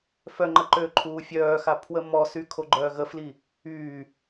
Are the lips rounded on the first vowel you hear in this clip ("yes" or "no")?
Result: yes